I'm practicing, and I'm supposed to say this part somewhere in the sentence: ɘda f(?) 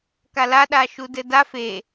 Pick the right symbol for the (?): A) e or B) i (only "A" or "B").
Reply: A